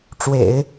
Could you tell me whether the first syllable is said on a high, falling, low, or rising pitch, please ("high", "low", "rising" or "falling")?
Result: low